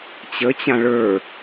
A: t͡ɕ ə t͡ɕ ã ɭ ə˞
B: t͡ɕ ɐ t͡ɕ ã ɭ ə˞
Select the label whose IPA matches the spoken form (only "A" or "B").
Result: A